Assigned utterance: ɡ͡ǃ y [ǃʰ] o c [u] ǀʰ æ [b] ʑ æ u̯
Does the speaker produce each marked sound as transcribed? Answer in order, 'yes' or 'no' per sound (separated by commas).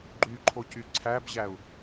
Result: yes, no, yes